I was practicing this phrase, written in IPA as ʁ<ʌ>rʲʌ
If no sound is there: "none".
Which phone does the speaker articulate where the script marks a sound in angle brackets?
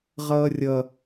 ʌː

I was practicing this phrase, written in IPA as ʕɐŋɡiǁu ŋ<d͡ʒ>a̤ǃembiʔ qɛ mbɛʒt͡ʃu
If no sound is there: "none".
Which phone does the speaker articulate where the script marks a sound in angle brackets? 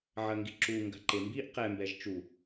ɡ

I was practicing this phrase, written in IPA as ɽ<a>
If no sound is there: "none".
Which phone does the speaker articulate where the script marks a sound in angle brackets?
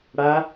a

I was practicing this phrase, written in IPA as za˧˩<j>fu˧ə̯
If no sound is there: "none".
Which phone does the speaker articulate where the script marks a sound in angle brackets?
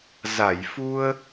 j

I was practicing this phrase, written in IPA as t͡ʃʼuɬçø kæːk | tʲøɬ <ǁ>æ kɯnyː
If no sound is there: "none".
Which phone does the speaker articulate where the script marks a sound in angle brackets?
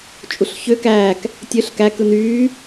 k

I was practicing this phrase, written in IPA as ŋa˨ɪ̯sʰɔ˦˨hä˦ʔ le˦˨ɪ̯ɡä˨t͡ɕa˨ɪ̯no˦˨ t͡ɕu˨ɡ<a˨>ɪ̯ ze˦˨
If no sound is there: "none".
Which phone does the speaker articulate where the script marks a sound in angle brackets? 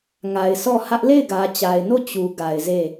a˨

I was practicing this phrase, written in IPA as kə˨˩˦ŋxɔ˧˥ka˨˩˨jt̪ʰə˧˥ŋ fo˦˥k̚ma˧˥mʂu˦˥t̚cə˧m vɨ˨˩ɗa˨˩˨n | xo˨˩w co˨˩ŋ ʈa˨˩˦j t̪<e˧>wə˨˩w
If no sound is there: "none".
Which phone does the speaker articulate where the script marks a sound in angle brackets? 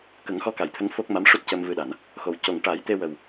e˧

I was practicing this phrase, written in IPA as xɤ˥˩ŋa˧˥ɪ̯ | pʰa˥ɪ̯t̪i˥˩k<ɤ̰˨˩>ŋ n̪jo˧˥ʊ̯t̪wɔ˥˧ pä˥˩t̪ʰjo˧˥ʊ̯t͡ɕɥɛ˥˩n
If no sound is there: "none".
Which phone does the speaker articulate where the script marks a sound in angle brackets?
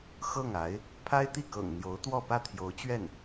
ɤ̰˨˩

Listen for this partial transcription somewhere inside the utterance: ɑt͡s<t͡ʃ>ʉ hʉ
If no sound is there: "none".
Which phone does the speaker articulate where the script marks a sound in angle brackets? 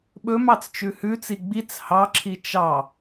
t͡ʃ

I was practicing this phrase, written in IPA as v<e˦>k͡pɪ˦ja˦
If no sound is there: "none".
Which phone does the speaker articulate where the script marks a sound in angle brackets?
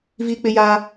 i˦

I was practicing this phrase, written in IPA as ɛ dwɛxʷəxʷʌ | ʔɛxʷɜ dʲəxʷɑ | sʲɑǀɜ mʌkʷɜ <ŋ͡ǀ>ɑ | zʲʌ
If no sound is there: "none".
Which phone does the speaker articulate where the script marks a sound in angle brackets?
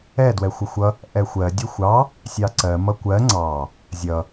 ŋ͡ǀ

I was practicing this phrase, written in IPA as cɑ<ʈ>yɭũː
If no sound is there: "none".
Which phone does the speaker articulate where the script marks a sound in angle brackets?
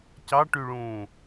ʈ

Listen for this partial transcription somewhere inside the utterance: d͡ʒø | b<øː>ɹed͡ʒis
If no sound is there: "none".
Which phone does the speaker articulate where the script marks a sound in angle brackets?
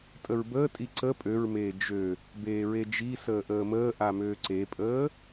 eː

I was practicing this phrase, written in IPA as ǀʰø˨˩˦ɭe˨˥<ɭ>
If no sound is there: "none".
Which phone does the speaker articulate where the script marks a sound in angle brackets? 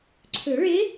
none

